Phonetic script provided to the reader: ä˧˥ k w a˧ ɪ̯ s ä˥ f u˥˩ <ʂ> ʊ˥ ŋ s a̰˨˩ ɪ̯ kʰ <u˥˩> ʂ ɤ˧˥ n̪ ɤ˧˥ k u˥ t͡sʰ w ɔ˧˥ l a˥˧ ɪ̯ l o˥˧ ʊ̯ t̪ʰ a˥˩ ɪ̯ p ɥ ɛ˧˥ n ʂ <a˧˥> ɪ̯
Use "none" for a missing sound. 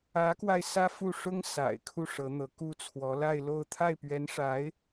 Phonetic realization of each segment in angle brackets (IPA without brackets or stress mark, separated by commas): ʂ, u˥˩, a˧˥